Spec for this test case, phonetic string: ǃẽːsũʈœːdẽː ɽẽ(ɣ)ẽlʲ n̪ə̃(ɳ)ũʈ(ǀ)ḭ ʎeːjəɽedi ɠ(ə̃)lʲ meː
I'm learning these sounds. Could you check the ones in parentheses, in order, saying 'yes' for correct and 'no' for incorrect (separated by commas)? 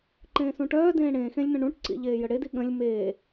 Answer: no, yes, yes, yes